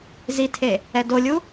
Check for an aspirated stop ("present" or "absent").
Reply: present